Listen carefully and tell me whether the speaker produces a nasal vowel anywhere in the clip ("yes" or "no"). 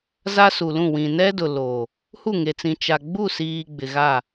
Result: yes